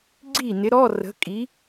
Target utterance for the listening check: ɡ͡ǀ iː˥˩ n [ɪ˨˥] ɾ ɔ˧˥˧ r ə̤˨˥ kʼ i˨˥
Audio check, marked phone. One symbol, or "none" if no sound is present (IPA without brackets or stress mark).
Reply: ɪ˨˥